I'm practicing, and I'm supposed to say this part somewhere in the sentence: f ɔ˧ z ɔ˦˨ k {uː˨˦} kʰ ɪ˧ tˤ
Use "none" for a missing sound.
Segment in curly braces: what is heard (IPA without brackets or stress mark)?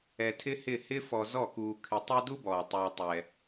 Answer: uː˧